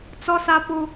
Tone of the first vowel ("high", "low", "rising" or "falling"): high